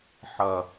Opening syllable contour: low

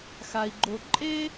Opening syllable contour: low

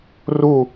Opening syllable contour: falling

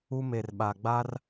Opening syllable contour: high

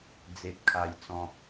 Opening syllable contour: low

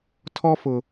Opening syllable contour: high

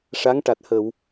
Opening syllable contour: rising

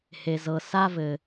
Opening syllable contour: low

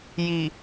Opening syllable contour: low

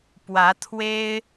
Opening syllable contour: rising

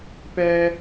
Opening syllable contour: high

